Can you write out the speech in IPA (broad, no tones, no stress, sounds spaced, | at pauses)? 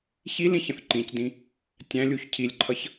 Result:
ç i l ĩ ç ə̃ θ ǃ ĩ c d ĩ | tʲ æ̃ lʲ u ç cʰ i lʲ ǃʰ ʌ ç